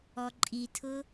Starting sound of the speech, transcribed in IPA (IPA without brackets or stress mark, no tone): ɔ